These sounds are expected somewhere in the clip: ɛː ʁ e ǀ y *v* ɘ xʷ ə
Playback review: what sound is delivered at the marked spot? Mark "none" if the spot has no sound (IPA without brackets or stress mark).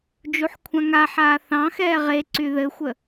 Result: ð